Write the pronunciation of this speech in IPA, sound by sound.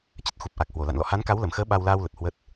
t͡ɕ ə˦˥ t̚ x u˨˩ p̚ ʔ a˨˩ k̚ h w o˧˩ l a̰˧˨ n l ɔ̰˧˨ h a˨˦ n k a˨˦ w l ə˧˩ m x əː˨˦ ɓ a˧ w l aː˧ w l ə˨˩ t̚ h w ə˦˥ t̚

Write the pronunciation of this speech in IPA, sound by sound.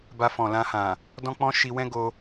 b a˧ f ɔ̃˨ l ã˧ h ã˨ | d ɔ̃˦ k͡p ɔ̃˦ ʃ i˧ w ɛ̃˦ ɡ o˧

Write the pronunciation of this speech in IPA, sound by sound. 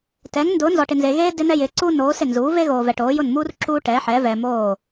t ɛː˩˥ ŋ n d ʊː˩˥ n z ɔ˨ ʈ ɪ˨ n z e˨ ɣ eː˥ d ɪ˥ n ɛ˥ j ɪː˩˥ ǀ uː˥ n oː˩˥ s ɪ˥˩ n z uː˩˥ v e˥ ɣ oː˨ v ɛ˨ ʈ oː˩˥ j ʊ˥˩ n m uː˥ r ǁ uː˥ ʈ ɛ˩˥ ħ ɛ˩˥ v ɛ˨ m oː˥˩

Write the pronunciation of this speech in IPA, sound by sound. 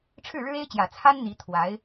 ʈ͡ʂʰ ɻ̩˥˩ ɻ ɻ̩˥ e˥ ɪ̯ t͡ɕ j ä˨˩ t͡sʰ a˥ n n̪ i˧˥ t̪ʰ w a˧˥ ɪ̯

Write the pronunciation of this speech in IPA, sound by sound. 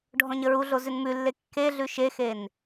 ɖʱ ɔ̃ ɲ ə ɹ u ɮ o z ʉ n m ʉ lː e kː e ɮ ʉ ʃ e x e n

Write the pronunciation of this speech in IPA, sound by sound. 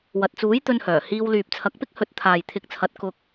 w ɐ˨ t̚ t͡s uː˨˥ j t̪ ɵ˧ n h œː˨˩ h iː˧ w l yː˨ p̚ t͡sʰ ɐ˨˥ k̚ p ɪ˥ k̚ h ɵ˨˥ t̚ t̪ʰ aː˨ j t̪ʰ ɪ˨˥ k̚ t͡sʰ ɐ˨˥ t̚ k ʊ˧ k̚

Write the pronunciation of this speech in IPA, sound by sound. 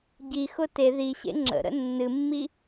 ɟ i x ʊ t e ð i ɕ ḛ ŋ͡ǁ ə̰ ɾ ə̰ nː ɨ mː i

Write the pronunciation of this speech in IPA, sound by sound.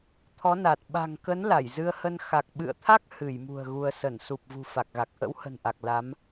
t̪ʰ ɔ˨˦ n a˨˩ t̚ ɓ a̤˨˩ ŋ k ə˨˦ n l a˧˩ j z ɨ˧ ə̯ h ə˧ n x a˨˩ k̚ ɓ ɨ̰˧˨ ə̯ t̪ʰ a˦˥ k̚ h ɨ˧˩ j m ṳ˨˩ ə̯ ɣ u˧ ə̯ s ə˧˩ n s u˨˩ p̚ v ṳ˨˩ f a˨˩ k̚ ɣ a˨˩ k̚ ʔ ə̰˧˥ w h ə̤˨˩ n ʔ a˨˩ k̚ l a˨˦ m

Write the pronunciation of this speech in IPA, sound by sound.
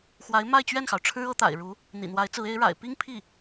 x w a˧˥ ɪ̯ m a˥˧ ɪ̯ t͡ɕ ɥ ɛ˥˩ n x ɑ˩ ʊ̯ ʈ͡ʂʰ ɻ̩˥ ɤ˧˥ t̪ a̰˨˩ ɪ̯ ɻ u˧˥ | n̪ ḭ˨˩ n̪ w a˧˥ ɪ̯ t͡s ɹ̩˧˥ e˧˥ ɪ̯ ɻ a̰˨˩ ɪ̯ p i˥ ŋ pʰ i˥˩

